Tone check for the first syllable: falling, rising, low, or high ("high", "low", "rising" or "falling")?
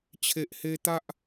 low